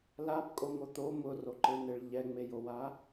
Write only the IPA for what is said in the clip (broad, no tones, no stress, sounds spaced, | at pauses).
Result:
l a b kʼ o ŋ o t̪ o m ʊ r o ǃ e n̪ e ɭ ʎ ɛ ŋ͡m e j o w a